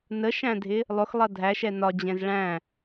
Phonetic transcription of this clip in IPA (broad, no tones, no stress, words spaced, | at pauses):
nəʃæ̃dʱɪ | lˠʊxlˠʌ dʱæʃɛ nɒd͡ʑɛ̃z ɭæ̃